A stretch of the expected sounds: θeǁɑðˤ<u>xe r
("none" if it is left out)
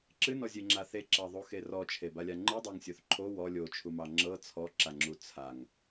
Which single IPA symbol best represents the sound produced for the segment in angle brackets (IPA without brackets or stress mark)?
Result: u